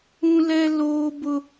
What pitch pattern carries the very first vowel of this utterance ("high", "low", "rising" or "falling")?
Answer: high